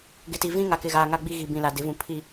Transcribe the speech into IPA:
ɡ ɪ˨ t i˨ v ĩ˦ ŋ a˨ k ɪ˨ ɣ aː˨ ŋ a˦ ɡ͡b i˦ ɣ i˨ b ĩ˨ l a˨ d ɪ˨˦ v ũ˨ pʰ i˨

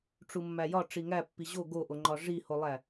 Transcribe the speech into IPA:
ʈ͡ʂ u mː æ j ɒ ʈ͡ʂ i ŋ æ pː i ʑ o ɡ o ʔ o ŋ͡ǃ ɒ ʐ i h o lˠ æ

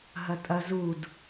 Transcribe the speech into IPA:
ɦ ɐ tʼ ɐ z u d

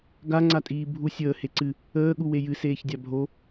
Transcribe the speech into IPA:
ɡ a ŋ͡ǀ a tʼ iː bʱ u sʲ əː h e ǀ ɨ | əː ɠ u w e j ɨ s eː ç dʲ a bʱ o

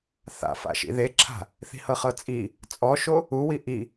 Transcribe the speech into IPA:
θ a̰ f a̰ ʃ ḭ ð e ǁʰ a̤ | θ i̤ h ɤ χ ɤ t͡sʼ i | t͡sʼ ɔ ʃ o | u w i ʔ i

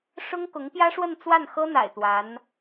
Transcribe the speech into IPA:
ʂ ʊ˥ ŋ k ʊ˧˥ ŋ p j ä˥ ʂ w ə˥˧ n t͡s w a˥˩ n x ɤ˥ n̪ a̰˨˩ ɪ̯ t̪ w a˧˥ n

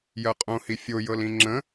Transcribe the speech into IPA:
j ɜ qʼ õ h i fʲ o j ɤ l ĩ ŋ͡ǁ ə̃

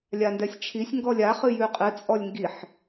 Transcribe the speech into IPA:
lʲ a n d ɛ sʲ t͡ʃʰ i sʲ ŋ ɡ ɔ lʲ a χ ɨ j ʉ qʼ ɨ t͡sʼ ɔ lʲ ŋ ɡ i ħ

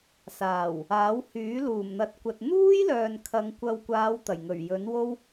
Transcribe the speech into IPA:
s aː˨˩ w | aː˨˥ w h yː˨˥ l uː˨˩ m n̪ ɐ˨ t̚ kʷ ɐ˨ t̚ n̪ uː˥ j l œː˨ n kʰ ɐ˨˧ ŋ kʷ ɐ˧ w kʷ aː˨˧ w t̪ ɐ˨˩ j ŋ ɵ˨˩ ɥ j ɵ˨˥ n w o˥ w

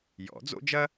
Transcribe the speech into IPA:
j ɔ̰˨˩˦ d͡z o̰˥ d͡ʒ ɐ˥

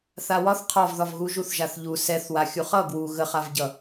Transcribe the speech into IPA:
θ a w ɒ θ qʰ ɒ v ð ɒ v ɣ u ʒ u θ ʒ a θ ʎ u s ɛ θ w a xʲ u χ ʌ ɡ w u ɣ ə χ a v ɟ ʌ

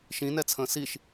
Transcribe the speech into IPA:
ʃ ĩ n ɛ t͡sʰ ə̃ː s i ʃ

